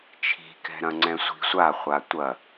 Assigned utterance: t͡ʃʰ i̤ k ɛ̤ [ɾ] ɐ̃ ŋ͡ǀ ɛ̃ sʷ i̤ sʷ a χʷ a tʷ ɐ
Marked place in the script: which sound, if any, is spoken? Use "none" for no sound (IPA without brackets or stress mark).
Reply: ɾ